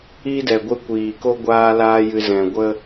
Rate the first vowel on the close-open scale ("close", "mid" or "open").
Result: close